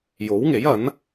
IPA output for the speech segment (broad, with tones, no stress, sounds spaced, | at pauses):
j o˨˥ w ŋ e˨˥ j ɐ˨˥ n